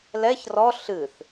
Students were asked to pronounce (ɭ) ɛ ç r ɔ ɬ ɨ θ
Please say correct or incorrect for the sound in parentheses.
incorrect